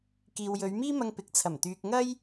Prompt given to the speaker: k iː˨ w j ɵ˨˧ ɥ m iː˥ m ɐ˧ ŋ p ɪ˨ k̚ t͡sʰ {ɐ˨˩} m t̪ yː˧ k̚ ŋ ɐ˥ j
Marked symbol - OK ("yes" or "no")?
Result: yes